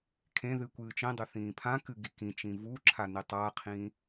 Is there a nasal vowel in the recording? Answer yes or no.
yes